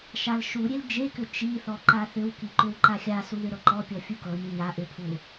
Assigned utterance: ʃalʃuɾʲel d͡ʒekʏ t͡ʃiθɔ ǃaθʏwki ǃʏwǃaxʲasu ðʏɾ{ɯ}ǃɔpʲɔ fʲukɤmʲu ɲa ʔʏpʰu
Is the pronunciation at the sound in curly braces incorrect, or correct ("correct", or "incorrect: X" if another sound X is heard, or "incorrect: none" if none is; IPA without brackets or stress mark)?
incorrect: ɤ